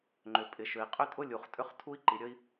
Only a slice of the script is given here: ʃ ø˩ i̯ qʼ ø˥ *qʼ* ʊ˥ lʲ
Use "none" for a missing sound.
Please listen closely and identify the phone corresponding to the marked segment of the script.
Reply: tʼ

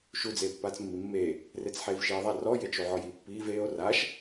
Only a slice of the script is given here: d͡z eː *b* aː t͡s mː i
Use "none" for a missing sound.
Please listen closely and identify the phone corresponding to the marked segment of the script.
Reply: pː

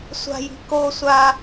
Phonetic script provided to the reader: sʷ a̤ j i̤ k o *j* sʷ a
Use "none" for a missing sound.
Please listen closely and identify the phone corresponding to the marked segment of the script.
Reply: none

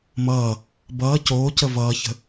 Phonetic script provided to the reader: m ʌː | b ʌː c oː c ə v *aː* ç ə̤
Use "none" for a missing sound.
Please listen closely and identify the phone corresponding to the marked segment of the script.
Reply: ʌː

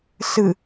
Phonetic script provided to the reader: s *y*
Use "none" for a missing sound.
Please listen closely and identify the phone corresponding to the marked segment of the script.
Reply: ɨ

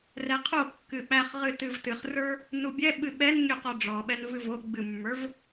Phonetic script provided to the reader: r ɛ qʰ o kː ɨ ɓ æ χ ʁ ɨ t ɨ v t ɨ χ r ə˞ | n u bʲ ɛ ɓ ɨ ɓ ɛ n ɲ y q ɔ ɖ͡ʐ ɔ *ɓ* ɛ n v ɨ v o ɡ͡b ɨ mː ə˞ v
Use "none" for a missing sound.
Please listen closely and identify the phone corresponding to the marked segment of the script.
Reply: ɓ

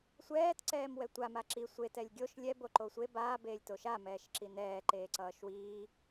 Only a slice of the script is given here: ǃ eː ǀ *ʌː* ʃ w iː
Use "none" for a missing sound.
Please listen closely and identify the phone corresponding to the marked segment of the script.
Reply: ʌː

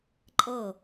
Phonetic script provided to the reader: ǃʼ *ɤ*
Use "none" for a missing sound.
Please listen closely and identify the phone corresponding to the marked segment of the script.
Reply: ɤ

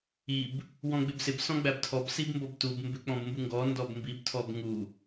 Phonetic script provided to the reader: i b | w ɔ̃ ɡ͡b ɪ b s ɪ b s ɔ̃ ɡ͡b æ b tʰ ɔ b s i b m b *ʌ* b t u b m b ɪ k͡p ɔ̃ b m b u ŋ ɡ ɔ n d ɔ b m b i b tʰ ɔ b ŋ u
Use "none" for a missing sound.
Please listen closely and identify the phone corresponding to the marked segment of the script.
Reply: ʌ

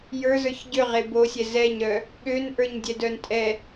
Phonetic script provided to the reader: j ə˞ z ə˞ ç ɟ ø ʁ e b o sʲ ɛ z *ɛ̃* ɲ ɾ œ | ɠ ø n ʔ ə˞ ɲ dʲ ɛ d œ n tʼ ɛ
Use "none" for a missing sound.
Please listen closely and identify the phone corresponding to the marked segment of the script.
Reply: ɛ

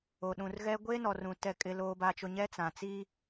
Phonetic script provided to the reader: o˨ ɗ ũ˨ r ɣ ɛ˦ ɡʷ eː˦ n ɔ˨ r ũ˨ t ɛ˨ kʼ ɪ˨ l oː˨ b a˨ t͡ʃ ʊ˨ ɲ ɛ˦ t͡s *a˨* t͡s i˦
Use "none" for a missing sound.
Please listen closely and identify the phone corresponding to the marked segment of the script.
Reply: ã˨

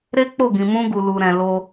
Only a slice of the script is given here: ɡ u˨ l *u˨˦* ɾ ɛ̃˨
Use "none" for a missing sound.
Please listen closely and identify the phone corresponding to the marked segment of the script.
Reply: u˨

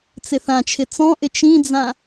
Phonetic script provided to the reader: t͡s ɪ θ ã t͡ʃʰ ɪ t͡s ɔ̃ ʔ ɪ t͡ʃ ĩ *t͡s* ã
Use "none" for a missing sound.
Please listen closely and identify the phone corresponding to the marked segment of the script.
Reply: d͡z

